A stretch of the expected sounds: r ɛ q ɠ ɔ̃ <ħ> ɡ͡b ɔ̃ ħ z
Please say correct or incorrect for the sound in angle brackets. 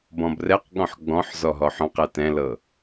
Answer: correct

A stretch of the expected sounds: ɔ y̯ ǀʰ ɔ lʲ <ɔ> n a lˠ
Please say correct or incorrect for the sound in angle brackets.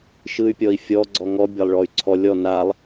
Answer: correct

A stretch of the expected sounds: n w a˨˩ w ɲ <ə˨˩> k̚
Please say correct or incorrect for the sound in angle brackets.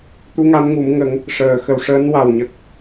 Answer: correct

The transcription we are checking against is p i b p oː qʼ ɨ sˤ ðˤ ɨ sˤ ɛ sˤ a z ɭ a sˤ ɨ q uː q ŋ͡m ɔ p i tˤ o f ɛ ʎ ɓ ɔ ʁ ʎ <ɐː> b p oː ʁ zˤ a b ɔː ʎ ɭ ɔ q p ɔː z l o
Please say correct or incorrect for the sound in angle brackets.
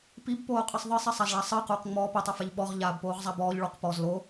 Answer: incorrect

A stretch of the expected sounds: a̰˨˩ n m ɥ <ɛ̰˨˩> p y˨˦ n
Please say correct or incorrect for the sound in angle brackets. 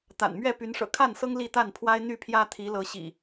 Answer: incorrect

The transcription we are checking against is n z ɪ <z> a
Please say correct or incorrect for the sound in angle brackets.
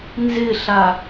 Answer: incorrect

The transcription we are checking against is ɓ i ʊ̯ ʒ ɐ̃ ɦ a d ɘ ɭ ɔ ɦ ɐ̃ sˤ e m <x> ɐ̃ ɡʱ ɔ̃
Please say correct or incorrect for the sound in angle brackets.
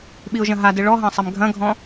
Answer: incorrect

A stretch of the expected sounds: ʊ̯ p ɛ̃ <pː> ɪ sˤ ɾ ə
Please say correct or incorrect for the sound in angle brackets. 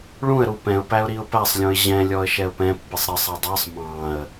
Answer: correct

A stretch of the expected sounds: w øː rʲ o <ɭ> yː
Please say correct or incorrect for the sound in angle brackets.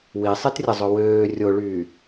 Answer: correct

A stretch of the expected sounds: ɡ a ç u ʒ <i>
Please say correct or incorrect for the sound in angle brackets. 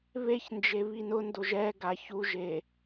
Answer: incorrect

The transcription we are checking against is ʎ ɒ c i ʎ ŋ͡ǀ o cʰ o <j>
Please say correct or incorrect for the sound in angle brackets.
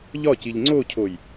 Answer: correct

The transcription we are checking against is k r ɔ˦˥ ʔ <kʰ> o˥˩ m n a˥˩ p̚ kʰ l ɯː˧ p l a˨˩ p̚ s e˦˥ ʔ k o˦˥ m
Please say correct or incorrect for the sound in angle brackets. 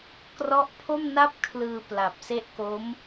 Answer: incorrect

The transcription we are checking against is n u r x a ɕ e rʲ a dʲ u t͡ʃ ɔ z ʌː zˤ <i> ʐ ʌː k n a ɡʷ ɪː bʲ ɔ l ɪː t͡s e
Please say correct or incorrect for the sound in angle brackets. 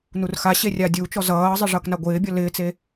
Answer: incorrect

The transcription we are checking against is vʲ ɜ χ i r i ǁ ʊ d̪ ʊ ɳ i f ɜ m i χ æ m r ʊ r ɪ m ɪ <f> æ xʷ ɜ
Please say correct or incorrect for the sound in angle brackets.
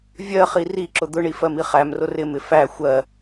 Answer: correct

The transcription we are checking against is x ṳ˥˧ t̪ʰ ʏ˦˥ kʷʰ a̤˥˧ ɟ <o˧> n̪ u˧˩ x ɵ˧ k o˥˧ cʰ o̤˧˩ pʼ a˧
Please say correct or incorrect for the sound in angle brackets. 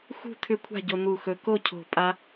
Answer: correct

